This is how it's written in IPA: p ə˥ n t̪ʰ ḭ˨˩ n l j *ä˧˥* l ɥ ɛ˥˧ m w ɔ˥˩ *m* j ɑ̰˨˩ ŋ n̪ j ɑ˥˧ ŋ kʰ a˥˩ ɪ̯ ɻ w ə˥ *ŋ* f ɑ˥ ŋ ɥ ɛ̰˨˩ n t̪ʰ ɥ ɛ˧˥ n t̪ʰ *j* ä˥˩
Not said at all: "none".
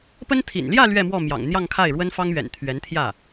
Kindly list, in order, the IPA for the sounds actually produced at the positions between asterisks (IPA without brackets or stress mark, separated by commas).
ä˥˧, m, n, j